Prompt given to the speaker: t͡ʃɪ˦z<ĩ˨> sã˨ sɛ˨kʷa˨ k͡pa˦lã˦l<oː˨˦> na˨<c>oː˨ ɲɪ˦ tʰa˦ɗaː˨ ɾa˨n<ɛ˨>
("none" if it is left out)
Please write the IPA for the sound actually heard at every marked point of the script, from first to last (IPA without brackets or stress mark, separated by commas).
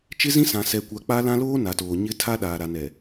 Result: ĩ˦, oː˦, t, ɛ˨